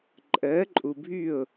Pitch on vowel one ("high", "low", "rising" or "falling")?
rising